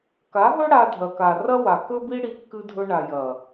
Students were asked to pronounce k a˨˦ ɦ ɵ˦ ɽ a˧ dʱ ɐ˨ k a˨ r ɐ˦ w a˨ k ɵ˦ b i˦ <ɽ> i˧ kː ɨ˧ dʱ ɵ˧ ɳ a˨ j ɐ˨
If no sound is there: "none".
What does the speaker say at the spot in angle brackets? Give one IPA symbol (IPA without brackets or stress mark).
ɽ